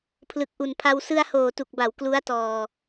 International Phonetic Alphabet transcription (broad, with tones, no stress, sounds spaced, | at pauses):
pʰ l ɯ˨˩ k̚ ʔ u˨˩ n pʰ a˧ w s ɯ˧ a̯ h oː˨˩ t u˨˩ k̚ b a˩˦ w k l u˦˥ a̯ t ɔː˧